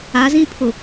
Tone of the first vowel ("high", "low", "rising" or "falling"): rising